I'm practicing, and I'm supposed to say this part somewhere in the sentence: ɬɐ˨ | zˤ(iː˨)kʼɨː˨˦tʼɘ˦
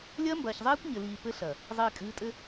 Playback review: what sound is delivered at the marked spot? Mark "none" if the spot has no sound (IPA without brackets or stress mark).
iː˨